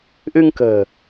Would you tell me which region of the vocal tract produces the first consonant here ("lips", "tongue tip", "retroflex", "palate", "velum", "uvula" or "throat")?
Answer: throat